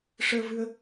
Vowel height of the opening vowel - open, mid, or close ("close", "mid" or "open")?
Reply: mid